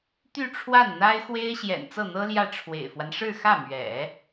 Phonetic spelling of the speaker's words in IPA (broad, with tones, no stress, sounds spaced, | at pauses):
t̪ y˥˧ ʈ͡ʂʰ w a˥˩ n n̪ a˥ ɪ̯ x w e˥ ɪ̯ ɕ j ɛ̰˨˩ n t͡s ɤ˥˩ n̪ ɤ˥ l j ä˥˩ ʈ͡ʂʰ w ḛ˨˩ ɪ̯ f w a˦ n ʂ ɻ̩˥˧ x ä˥˩ m ɥ ɛ̰˨˩˦